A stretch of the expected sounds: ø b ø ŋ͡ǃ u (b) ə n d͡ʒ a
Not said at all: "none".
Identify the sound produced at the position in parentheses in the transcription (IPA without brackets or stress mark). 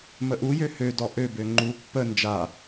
pː